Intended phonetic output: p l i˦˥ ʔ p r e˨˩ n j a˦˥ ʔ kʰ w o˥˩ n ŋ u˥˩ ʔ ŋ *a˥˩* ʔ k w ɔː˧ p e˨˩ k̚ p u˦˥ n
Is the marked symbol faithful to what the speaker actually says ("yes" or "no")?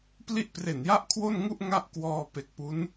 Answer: yes